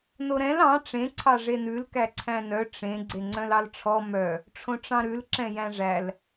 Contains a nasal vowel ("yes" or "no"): yes